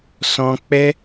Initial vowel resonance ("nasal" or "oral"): nasal